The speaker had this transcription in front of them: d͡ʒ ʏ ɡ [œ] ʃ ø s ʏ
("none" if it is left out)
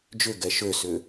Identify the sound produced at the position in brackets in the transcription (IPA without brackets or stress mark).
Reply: ɛ